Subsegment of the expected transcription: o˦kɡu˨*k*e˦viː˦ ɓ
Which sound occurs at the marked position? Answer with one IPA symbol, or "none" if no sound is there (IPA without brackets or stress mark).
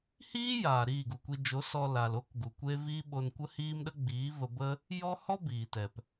kʷ